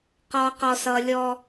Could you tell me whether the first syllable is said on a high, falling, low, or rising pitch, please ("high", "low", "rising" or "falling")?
high